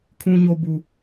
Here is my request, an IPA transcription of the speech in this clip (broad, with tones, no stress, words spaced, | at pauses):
kʰũ˦ɲo˦ bu˦